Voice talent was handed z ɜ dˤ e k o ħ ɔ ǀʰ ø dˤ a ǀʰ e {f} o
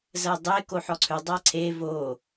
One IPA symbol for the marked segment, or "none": v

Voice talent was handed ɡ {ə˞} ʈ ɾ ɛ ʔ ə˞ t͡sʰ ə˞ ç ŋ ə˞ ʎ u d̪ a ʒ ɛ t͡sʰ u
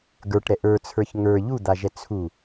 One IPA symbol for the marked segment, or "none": ə˞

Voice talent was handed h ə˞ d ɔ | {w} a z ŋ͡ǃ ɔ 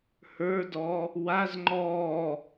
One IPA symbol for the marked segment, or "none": w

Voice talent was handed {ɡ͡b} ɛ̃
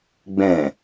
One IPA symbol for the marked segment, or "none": ɡ͡b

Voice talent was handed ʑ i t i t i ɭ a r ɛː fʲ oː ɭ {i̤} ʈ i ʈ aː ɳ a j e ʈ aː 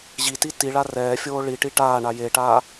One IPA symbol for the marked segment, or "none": i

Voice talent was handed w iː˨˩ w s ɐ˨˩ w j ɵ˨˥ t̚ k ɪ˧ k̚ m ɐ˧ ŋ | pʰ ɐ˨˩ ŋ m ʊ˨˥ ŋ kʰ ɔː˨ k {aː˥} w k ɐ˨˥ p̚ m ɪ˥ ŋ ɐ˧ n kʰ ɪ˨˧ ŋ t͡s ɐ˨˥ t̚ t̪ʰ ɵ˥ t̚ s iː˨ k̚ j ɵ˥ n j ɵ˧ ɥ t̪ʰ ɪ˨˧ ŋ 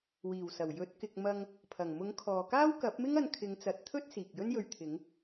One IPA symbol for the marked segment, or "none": aː˥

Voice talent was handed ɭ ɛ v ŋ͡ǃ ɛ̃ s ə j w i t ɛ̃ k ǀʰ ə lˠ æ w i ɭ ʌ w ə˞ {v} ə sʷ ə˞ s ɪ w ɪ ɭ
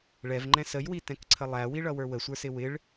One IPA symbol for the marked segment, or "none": w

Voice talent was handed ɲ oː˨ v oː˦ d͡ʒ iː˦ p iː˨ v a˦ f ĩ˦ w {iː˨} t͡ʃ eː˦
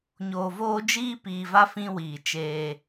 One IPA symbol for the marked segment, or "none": iː˨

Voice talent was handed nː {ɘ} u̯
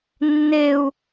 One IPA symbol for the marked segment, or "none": e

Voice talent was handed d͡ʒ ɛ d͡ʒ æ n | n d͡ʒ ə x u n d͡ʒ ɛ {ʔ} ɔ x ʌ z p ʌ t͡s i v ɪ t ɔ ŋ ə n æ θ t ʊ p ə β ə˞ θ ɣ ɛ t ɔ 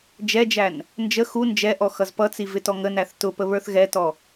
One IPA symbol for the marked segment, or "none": ʔ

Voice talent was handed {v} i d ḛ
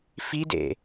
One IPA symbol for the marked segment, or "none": f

